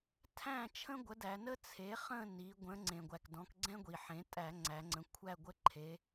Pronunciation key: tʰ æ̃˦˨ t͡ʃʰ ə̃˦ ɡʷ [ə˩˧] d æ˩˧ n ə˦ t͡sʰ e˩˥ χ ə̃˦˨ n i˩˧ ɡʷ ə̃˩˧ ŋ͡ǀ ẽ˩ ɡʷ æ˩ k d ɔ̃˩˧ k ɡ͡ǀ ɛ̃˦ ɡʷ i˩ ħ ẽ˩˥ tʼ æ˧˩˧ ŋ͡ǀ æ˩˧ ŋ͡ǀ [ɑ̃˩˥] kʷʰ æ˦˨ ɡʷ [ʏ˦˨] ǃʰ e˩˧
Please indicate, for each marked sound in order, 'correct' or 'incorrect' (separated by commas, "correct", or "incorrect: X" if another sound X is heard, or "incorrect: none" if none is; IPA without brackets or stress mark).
incorrect: ə˩˥, incorrect: ə̃˩˥, incorrect: ə˦˨